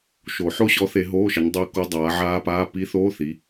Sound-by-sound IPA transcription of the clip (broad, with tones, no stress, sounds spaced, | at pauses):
ʃ o˨˩˦ ħ o˦˥ ɕ ɔ˨˦ θ e˨˦ ɦ oː˧˥˧ ʃ ə˨˦ ɲ dˤ ɵː˦˥ k o˦˥ dˤ aː˨˦ ʕ aː˦˥ p aː˧˥˧ p i˦˥ θ oː˧˥˧ θ i˨˦